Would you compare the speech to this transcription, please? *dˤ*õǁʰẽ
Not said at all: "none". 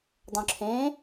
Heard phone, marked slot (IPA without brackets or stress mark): dˤ